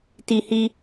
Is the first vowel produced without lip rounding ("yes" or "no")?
yes